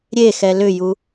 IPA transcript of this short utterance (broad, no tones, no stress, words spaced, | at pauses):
ɾʲexɛ lʏju